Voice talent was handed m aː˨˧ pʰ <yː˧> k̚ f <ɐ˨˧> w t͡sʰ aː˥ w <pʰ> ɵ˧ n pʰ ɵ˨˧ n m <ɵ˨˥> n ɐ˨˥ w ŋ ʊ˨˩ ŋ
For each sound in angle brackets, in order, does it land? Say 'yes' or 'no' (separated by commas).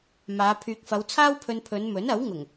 no, yes, yes, yes